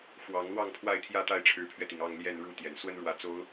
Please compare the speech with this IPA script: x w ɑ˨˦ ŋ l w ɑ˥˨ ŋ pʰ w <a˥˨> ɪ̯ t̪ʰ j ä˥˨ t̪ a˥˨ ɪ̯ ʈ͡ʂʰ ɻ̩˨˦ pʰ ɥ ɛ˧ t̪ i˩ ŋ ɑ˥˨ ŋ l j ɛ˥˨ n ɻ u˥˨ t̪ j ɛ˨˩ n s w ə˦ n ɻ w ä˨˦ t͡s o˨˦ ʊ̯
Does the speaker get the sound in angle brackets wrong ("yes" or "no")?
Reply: no